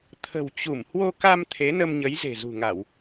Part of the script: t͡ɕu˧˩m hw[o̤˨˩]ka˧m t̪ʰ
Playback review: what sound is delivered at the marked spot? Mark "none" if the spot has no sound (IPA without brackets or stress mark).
o˧